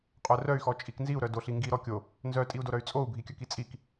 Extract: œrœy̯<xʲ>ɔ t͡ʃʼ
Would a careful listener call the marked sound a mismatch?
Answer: yes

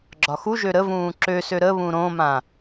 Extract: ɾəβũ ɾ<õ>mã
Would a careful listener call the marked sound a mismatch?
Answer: no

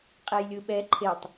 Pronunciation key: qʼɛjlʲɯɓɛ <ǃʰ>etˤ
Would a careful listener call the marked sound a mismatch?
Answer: no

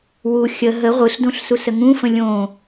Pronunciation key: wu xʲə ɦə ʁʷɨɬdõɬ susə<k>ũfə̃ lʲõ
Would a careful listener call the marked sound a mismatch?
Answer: yes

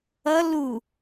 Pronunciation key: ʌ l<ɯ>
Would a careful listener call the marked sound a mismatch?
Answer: yes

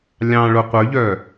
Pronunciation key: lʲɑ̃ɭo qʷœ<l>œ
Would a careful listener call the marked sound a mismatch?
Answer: yes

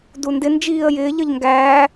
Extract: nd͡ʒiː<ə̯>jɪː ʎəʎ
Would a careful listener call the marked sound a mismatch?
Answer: no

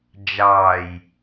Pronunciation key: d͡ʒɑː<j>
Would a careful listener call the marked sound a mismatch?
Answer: no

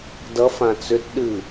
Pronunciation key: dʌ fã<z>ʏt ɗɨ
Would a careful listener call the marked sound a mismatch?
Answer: yes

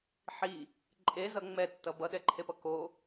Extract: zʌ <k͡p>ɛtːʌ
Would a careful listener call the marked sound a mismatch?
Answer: yes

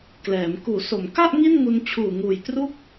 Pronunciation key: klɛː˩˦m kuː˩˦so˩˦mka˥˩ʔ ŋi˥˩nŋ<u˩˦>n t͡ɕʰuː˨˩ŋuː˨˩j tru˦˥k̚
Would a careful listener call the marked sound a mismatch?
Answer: yes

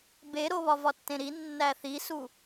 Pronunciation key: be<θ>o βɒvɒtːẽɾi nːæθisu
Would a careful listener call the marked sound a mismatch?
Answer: yes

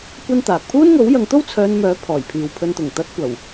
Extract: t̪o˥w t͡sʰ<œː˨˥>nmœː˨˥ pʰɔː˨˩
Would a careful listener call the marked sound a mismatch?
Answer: yes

